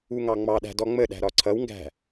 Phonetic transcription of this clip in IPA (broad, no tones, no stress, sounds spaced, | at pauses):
u ŋ ɑ ŋ͡m ɑ ɗ æ̤ d ɔ ŋ͡m ə ɗ æ̤ ɾ ɒ ǀʰ ʌ w ŋ ɡ æ̤